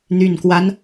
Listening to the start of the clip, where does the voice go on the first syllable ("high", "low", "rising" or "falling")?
low